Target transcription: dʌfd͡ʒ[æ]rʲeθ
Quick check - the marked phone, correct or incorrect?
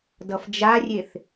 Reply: incorrect: a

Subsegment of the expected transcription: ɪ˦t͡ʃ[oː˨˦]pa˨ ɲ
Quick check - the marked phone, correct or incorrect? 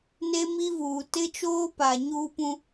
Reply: incorrect: oː˦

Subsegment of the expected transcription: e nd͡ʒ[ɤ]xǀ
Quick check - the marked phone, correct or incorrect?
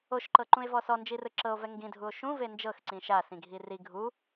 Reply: correct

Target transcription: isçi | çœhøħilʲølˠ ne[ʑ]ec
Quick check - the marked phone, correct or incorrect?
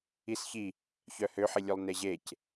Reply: correct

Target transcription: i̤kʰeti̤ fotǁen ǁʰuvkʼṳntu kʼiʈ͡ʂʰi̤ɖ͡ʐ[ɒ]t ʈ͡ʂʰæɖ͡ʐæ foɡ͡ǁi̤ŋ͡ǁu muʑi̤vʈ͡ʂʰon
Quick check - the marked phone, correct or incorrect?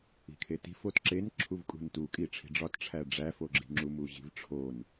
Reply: correct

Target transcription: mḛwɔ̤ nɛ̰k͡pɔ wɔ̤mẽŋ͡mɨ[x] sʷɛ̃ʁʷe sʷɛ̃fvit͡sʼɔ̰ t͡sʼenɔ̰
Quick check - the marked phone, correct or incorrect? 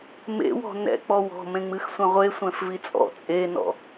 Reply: correct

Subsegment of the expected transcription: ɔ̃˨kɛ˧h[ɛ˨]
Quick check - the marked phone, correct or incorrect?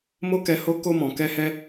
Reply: incorrect: ɛ˧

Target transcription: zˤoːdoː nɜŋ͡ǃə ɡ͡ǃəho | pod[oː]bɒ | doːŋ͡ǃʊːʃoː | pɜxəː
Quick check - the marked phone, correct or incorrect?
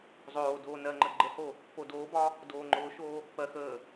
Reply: correct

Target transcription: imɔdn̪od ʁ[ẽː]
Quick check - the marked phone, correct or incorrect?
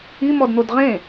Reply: incorrect: ẽ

